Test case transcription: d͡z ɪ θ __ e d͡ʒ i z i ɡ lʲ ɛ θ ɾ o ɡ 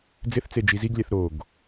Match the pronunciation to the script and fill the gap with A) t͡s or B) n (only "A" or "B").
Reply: A